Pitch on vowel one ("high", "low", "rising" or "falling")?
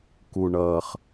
low